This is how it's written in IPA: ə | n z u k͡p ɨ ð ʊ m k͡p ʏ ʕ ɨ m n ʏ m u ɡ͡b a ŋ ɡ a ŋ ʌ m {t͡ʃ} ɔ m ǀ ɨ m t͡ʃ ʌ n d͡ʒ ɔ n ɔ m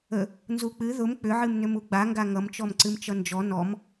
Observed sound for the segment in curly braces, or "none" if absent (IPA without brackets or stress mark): t͡ʃ